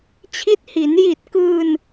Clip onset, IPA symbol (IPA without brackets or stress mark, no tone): t͡ɕʰ